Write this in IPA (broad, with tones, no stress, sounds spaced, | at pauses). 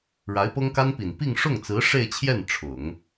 ɻ a˧˥ ɪ̯ p ɤ˥ ŋ k a˥ n p i˨˩ n p i˥˧ ŋ ʂ ʊ˥˩ ŋ t͡s ɹ̩˧˥ ʂ e˥˧ ɪ̯ t͡ɕʰ j ɛ˥˩ n ʈ͡ʂʰ ʊ˨˩˦ ŋ